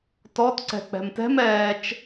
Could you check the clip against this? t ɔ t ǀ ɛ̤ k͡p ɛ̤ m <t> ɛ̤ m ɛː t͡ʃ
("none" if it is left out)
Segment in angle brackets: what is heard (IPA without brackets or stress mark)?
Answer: t